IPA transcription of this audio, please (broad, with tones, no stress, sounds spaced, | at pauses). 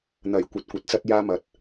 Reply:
n̪ ɐ˨˩ j kʷ ɐ˧ t̚ kʷ ɐ˨ t̚ t͡s ɐ˥ t̚ j aː˥ m ɐ˨ t̚